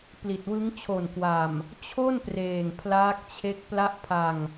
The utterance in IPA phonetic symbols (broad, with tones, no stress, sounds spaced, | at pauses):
p l i˨˩ t̚ w ɯ˦˥ ŋ t͡ɕʰ o˨˩ n k w a˨˩ m | t͡ɕʰ o˥˩ n p r eː˨˩ ŋ pʰ l aː˦˥ k̚ t͡ɕʰ e˦˥ k̚ p l a˥˩ ʔ pʰ a˧ ŋ